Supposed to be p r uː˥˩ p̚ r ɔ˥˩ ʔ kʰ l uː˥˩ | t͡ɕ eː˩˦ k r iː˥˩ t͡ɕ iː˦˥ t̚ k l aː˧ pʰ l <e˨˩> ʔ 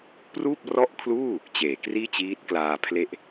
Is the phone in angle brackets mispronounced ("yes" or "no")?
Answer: yes